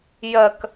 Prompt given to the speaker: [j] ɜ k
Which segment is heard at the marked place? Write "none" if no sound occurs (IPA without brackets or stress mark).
j